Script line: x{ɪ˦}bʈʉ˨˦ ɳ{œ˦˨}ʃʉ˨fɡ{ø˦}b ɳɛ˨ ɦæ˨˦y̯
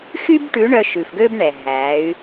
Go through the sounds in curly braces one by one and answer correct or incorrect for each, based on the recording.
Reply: incorrect: y˦, incorrect: œ˧, correct

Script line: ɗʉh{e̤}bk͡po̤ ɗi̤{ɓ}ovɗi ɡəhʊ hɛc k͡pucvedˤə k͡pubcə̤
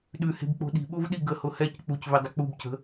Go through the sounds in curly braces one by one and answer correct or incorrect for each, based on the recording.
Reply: correct, correct

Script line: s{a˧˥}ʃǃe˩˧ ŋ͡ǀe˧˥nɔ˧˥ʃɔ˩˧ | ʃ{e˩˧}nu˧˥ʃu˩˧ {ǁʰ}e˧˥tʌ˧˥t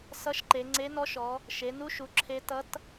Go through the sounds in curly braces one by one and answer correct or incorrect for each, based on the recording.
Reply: incorrect: ʌ˧˥, correct, correct

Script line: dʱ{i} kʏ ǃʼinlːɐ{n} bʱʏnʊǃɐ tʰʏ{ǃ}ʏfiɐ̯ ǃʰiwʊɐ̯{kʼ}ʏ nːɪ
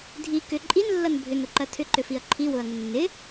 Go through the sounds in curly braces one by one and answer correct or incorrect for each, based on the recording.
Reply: correct, correct, correct, incorrect: ŋ

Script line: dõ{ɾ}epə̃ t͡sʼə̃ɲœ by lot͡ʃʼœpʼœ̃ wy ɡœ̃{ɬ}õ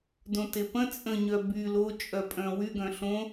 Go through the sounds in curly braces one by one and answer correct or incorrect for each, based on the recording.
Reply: incorrect: t, correct

